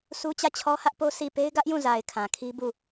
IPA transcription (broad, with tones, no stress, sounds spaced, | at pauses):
s u˦ t͡ɕ ä˦˨ t͡ɕʰ ɔ˦ h ä˦ ʔ p o˦ s i˦˨ p e˦ ɪ̯ ɡ ä˦ ʔ j ũ˦˨ z a˨ ɪ̯ kʰ ã˨ kʰ i˦ b u˦˨